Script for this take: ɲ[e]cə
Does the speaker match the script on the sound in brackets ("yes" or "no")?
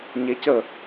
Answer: yes